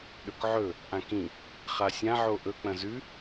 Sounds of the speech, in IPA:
ɗɵkʕɵ | ʔãkĩ | χasʲã ʕoʔɵ k͡pɐ̃zʉ

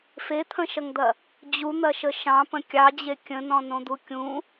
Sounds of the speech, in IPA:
fet̪ʰə̃ʃɐŋd̪ɐ | d͡ʑun̪ɐʃə ʃɑ̃pə̃ kʲɑd͡ʑe kʲə̃nɔ̃nõd̪u kʲũ

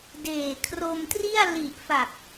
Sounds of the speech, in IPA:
deː˨˩kʰro˧mtri˥˩a̯ li˨˩ʔfa˨˩k̚

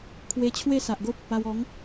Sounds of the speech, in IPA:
kʰwe˧t͡ɕʰwe˥˧sa˨ʔɡo˦p̚ | a˧w ɔ˨˦ŋ

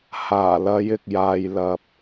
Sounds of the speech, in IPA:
haː˨˩lɐ˨˧j ɪ˨k̚jaː˨jlɐ˨p̚

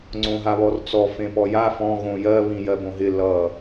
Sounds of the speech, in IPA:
ŋ͡ǀõɦaβɔrt͡sɔ fẽpɔja fɔ̃ ɣõjɜ βĩjɜbõɦɪ lʌ

